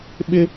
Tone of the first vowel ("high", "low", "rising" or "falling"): high